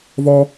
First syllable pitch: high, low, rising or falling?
high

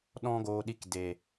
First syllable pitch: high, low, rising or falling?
high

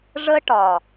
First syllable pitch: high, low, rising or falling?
high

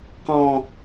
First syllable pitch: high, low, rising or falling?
high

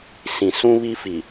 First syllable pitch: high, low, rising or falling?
low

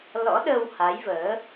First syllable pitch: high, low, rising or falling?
rising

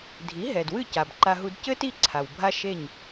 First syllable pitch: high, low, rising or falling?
rising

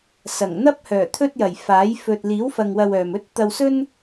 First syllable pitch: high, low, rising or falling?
low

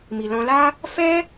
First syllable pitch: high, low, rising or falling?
low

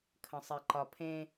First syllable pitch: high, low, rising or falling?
low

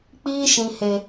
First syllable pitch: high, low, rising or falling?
high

